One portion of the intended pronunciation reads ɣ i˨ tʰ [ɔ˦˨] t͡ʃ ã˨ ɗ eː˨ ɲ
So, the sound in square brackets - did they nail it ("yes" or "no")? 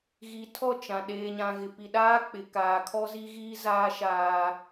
yes